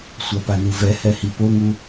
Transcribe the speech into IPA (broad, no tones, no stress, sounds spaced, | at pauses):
sʷ a p a n u v ɛ h ɛ h i p o ŋ u